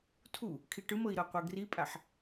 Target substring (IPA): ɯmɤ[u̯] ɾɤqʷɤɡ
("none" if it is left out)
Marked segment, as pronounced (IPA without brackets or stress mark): i̯